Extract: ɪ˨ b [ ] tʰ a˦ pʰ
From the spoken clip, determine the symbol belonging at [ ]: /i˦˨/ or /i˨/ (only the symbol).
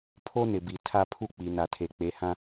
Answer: i˨